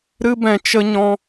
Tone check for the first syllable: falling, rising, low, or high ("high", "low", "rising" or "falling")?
high